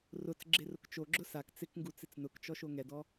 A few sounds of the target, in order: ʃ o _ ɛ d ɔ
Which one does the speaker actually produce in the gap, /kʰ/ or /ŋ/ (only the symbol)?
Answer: ŋ